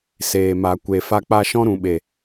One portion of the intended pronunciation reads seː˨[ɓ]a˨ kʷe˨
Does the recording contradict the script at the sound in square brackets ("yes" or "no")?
yes